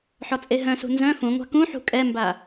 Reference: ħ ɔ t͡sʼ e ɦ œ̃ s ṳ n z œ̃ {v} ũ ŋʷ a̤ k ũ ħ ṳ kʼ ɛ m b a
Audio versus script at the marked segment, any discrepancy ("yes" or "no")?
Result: yes